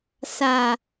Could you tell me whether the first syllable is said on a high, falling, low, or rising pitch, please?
low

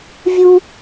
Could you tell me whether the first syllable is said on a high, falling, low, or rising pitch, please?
high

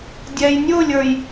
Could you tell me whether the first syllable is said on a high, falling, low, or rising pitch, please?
low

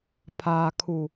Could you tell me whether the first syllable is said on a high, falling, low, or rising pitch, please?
low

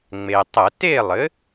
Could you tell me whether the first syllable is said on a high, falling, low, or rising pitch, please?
low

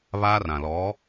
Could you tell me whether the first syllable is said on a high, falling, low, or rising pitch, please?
high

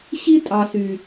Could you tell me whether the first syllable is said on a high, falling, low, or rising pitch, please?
high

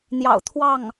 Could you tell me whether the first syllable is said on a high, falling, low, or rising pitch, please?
low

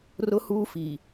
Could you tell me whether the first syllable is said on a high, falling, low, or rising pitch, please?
high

